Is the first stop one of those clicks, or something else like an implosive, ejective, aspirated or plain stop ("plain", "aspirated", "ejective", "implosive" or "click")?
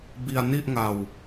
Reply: plain